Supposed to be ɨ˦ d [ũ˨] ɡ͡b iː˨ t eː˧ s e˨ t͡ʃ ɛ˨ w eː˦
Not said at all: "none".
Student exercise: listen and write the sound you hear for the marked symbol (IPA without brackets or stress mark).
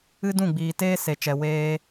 ũ˦˨